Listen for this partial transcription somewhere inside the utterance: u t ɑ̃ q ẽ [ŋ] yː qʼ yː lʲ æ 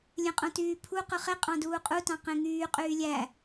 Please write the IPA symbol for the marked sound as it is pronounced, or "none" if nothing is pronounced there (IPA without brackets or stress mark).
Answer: ŋ